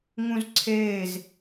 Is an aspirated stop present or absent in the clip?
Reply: present